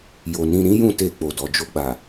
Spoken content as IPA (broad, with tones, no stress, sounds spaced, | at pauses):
j o˨ n ĩ˧ ɾ ĩ˦ j ũ˦˨ t e˧ k͡p o˨ d ɔ˨ d͡ʒ o˧ ɡ͡b a˨